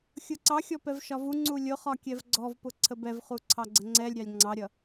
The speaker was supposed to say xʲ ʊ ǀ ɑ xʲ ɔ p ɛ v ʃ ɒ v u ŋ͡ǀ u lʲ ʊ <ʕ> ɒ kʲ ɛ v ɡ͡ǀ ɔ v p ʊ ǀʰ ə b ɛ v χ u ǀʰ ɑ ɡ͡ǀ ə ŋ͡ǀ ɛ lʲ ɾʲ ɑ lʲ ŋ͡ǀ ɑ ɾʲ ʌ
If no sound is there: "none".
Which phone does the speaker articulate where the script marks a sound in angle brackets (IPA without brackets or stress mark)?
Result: χ